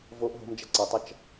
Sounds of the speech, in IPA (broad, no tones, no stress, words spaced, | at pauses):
voʔ ɦo̤md͡ʒʌ ǀʌtˤʌt͡ʃ